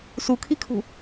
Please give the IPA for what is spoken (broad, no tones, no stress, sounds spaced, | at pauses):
s u kʰ i kʰ ṳ